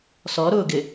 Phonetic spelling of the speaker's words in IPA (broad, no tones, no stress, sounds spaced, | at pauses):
s ɔ ɾ ʊː ɡ ɪ